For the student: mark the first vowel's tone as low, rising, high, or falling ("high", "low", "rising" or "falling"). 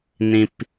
low